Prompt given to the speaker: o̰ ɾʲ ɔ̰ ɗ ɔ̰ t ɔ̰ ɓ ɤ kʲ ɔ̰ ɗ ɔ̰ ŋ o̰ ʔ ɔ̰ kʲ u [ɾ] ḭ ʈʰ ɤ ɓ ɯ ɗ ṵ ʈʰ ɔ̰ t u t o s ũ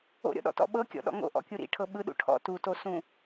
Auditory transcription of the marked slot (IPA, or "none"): ɾ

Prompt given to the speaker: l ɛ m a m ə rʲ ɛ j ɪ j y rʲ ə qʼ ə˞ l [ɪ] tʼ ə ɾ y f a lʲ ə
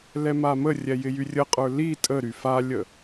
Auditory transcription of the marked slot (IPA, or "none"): i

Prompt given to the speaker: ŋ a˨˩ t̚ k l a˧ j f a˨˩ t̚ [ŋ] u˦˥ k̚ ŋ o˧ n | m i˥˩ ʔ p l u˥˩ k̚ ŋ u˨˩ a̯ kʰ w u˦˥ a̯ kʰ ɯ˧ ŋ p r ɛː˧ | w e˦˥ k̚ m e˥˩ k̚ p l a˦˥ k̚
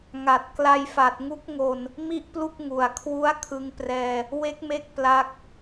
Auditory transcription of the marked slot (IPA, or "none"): ŋ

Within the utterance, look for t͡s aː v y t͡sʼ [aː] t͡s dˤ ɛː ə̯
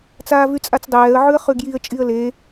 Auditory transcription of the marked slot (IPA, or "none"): a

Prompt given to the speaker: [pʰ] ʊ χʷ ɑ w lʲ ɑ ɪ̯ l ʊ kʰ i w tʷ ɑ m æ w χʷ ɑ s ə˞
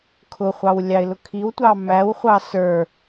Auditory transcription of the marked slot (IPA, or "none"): kʰ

